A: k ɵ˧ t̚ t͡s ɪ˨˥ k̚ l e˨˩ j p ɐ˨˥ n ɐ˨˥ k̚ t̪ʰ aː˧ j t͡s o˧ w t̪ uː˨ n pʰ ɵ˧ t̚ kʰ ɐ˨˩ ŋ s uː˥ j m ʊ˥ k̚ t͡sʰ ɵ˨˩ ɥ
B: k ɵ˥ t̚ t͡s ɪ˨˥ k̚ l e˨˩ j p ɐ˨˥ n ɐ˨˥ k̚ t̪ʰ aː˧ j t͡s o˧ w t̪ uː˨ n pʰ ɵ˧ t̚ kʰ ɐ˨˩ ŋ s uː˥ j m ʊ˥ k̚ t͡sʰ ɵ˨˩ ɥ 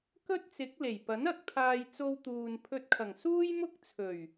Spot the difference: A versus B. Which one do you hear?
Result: B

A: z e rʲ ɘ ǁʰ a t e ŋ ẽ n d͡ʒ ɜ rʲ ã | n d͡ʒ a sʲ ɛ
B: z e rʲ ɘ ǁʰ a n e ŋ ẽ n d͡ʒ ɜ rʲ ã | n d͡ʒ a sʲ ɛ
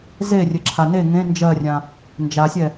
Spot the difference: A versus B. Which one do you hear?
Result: B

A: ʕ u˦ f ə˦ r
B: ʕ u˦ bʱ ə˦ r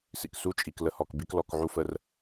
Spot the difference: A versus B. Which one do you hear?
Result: A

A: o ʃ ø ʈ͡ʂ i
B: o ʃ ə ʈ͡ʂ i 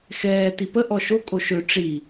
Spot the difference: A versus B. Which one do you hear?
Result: A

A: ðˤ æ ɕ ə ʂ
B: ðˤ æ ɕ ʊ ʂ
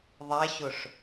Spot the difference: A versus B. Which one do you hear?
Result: B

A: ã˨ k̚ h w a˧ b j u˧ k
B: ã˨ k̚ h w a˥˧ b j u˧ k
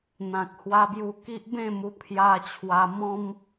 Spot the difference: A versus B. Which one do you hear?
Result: A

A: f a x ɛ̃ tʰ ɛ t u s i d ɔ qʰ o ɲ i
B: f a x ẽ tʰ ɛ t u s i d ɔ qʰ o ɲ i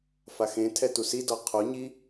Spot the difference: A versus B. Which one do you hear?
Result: B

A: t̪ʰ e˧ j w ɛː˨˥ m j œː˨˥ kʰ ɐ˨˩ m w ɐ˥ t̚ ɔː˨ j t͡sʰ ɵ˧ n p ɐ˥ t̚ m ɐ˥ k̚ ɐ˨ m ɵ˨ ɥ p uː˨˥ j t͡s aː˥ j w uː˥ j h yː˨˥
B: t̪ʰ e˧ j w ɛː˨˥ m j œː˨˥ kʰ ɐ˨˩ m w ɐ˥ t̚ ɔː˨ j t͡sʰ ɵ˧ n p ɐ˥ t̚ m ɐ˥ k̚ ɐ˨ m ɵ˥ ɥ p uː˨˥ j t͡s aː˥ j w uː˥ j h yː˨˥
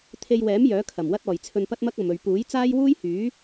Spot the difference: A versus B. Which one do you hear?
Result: A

